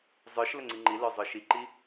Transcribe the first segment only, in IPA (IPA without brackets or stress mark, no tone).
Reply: zˤ